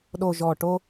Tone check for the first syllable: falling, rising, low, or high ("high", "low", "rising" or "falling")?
low